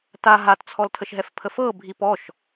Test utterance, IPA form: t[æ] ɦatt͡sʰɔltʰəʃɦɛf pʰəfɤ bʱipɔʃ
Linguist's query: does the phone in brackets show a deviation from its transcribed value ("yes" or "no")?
yes